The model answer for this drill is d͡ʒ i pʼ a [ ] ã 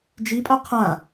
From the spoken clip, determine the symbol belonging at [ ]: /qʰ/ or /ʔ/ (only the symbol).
qʰ